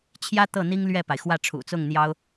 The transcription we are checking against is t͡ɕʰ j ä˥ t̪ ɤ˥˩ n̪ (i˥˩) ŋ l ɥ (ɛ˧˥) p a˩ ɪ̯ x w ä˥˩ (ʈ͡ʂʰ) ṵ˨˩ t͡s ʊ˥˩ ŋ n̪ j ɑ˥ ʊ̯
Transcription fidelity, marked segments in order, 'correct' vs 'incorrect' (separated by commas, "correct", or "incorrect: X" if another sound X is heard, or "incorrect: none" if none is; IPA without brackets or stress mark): incorrect: i˥, incorrect: ɛ˥˩, correct